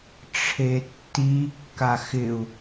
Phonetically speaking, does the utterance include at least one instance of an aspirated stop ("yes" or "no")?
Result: yes